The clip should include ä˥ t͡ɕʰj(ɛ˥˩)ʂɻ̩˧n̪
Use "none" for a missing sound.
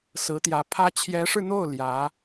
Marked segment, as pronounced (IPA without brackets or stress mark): ɛ˧˥